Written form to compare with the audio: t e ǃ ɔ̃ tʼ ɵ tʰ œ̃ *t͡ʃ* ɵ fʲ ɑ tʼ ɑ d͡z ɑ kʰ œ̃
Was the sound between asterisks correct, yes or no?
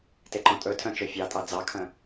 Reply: yes